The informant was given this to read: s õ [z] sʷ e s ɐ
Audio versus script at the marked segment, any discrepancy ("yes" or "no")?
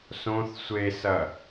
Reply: yes